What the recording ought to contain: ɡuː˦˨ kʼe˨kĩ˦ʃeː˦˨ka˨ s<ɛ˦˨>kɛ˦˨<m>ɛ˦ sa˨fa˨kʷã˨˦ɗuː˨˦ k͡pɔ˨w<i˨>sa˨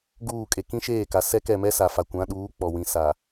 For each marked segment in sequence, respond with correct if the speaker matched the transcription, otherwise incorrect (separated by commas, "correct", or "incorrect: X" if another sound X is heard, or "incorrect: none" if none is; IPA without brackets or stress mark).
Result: incorrect: ɛ˦, correct, incorrect: ĩ˨